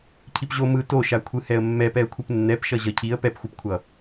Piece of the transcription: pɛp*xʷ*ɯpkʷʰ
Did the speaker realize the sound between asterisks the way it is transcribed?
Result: yes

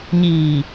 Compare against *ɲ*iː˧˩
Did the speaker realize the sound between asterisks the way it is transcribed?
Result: yes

